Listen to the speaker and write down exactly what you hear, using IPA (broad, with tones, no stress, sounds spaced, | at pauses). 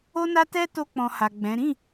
o˦ n a˦ t ɛ˦ t o˧ k͡p ɔ̃˨ h a˨ ɡ͡b ɛ̃˨˦ ɾ ĩ˦˨